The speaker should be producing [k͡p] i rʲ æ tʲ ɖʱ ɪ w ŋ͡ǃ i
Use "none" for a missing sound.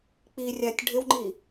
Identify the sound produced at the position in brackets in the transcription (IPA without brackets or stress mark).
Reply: k͡p